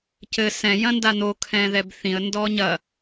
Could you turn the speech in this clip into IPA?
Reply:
cɘ sɛ̃ jɐ̃ndan̪o kʰɛ̃ðɛbθĩə̯ ndɔɲɐ

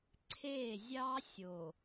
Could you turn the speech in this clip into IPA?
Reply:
ǀʰe˦˨ zʲɑ˦sʲo˨

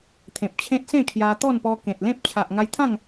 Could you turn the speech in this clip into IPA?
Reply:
t̪ʰẽ˨p̚t͡ɕʰẽ˦t̚ sẽ˥˧ kʰja˧ t̪ɔ˥˧npɔ˧ kẽ˨t̚lẽ˦p̚ t͡ɕʰa˨ʔŋa˧jt̪ʰã˥˧ŋ

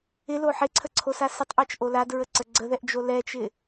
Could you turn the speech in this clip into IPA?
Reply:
ɪlo ħɪǀʰəǀʰosa sɪtˤʔɛt͡ʃʔo ladɹəǀə ɡ͡ǀəðɛʔd͡ʒo lɛt͡ʃɪ

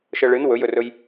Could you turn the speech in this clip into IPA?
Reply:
ʃɤɭɨn wɵjɵrɵj

